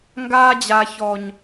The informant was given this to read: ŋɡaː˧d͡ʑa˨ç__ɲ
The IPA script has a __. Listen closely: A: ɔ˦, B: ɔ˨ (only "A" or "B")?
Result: B